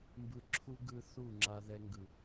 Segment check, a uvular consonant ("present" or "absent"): absent